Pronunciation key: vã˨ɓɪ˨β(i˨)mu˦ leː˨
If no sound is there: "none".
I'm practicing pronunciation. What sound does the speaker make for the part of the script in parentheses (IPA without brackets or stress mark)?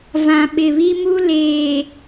i˦